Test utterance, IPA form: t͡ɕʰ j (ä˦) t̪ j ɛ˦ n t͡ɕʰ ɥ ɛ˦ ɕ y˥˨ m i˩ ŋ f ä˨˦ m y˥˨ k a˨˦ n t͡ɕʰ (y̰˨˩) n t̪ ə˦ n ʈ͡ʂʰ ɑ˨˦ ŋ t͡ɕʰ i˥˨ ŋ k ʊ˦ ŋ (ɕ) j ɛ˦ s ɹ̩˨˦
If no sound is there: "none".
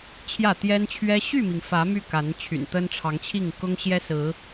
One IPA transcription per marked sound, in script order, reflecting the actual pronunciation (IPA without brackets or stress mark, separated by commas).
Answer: ä˥˨, y̰˨˩, ɕ